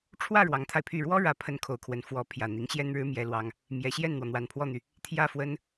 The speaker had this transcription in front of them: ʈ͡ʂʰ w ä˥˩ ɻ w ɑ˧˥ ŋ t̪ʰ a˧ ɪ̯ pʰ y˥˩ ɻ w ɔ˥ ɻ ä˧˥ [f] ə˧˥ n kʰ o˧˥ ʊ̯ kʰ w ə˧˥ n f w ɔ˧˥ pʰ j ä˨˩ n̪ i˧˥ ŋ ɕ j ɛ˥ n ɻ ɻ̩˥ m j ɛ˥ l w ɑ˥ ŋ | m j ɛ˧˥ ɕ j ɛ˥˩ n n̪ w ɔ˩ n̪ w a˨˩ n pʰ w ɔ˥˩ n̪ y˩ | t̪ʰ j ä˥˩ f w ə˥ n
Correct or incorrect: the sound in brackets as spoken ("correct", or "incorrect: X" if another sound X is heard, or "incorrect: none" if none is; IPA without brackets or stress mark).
incorrect: pʰ